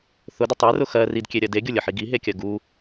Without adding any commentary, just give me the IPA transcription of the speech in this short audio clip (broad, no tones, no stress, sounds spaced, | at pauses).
θ ʊ d ʊ tˤ e r ʊ x ɜ r i d kʲ e ɾʲ ɜ d e ɡʲ ʊ lʲ ə ħ i ɡ i ɦ e kʲ ɜ ɡ u